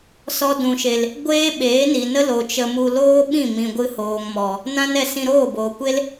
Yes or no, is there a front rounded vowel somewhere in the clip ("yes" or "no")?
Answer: no